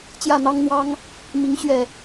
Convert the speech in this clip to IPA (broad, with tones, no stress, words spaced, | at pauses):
t͡ɕjä˥˨n̪ɑ˦ŋ n̪wɑ˦ŋ | mi˨˦ŋ ɕɥɛ˥˨